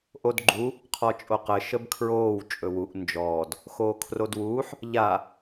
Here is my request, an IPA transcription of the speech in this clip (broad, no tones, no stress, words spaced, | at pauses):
ʔodɡ͡ǃu | qʰɔt͡ʃʼoqə ʃəbkʰɹoːw t͡ʃʼɵwuʔ nd͡ʒɔːd | xoːkʰrodwuːħ | ʎa